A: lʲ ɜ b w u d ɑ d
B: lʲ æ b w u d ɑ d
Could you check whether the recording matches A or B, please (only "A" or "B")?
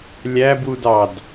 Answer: B